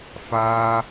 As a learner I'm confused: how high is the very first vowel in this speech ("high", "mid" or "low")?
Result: low